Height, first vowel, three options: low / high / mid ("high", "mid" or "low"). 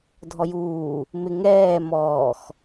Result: mid